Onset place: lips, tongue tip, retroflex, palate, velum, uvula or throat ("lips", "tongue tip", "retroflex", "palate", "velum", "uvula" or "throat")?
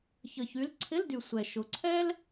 palate